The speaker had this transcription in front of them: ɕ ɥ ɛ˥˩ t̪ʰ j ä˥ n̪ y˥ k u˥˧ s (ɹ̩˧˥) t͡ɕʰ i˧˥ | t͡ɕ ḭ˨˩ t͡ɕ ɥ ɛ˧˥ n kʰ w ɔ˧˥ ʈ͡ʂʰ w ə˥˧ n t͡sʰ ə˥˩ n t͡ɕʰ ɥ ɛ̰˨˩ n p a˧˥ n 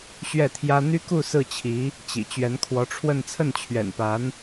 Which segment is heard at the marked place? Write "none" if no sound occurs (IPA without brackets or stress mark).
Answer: ɹ̩˥˩